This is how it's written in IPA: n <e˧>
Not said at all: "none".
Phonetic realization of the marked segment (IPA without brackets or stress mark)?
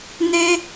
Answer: e˧